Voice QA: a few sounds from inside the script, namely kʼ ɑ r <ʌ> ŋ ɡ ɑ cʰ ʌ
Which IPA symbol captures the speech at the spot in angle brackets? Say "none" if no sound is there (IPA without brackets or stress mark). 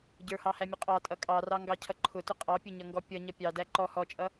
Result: ɑ